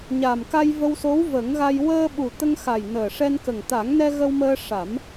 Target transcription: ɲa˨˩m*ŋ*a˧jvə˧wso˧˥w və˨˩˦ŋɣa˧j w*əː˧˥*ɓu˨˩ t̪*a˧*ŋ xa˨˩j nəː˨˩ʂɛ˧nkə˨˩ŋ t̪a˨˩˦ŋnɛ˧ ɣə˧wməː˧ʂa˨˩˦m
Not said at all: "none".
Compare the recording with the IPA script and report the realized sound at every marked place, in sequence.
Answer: k, əː˧, ə˧

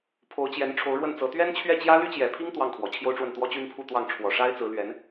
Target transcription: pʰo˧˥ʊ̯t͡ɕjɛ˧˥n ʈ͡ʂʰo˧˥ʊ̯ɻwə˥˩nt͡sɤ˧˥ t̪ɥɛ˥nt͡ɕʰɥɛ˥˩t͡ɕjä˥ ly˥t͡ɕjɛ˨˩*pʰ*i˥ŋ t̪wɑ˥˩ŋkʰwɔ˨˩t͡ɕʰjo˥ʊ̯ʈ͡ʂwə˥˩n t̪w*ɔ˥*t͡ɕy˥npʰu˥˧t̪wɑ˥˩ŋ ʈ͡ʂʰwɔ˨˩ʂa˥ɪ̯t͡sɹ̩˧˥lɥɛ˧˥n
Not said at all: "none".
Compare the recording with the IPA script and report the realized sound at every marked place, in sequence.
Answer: pʰ, ɔ˥

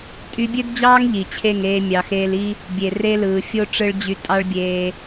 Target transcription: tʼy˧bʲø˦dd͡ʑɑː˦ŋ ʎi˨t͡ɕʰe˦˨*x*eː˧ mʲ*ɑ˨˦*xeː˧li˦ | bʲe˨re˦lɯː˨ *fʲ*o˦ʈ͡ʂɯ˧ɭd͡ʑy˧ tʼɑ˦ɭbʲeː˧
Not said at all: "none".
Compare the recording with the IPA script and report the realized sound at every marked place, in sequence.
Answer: ŋ, ɑ˨, fʲ

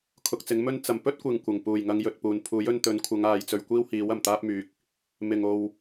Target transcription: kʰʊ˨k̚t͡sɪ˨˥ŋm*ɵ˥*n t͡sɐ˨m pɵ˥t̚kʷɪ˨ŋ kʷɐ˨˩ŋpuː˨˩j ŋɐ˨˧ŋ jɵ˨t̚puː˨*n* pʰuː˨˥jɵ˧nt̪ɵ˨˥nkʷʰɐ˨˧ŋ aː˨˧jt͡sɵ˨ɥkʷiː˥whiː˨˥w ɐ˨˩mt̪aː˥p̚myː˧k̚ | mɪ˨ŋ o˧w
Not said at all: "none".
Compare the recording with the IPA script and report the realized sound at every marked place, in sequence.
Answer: ɵ˥, n

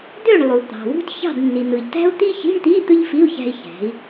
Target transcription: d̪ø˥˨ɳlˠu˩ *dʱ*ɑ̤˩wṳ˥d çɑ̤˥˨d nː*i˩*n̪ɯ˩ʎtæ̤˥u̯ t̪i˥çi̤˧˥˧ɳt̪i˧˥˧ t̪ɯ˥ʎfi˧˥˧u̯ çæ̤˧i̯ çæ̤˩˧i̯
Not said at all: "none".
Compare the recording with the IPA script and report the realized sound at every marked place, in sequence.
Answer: t̪, i˩

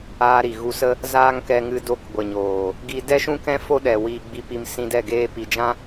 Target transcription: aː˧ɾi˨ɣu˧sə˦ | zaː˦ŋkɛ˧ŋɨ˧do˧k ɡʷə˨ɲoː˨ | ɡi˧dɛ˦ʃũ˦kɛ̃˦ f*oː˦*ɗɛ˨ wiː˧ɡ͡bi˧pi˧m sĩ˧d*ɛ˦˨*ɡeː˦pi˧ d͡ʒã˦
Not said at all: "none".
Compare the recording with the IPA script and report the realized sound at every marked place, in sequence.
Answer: o˦, ɛ˦˨

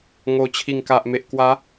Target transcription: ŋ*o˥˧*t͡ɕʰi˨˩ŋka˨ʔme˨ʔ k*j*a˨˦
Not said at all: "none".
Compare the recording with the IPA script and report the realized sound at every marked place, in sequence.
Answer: o˨˩, w

